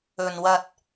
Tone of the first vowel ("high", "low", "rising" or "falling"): low